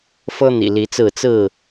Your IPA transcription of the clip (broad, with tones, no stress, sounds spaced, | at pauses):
f ɤ˦ n̪ ḭ˨˩ l i˨˦ t͡s ɹ̩˥˨ t͡s ɹ̩˥˨